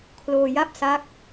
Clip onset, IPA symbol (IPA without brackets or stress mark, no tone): kʰ